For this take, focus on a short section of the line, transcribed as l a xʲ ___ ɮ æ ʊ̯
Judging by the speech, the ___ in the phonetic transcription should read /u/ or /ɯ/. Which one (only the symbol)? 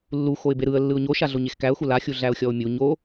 u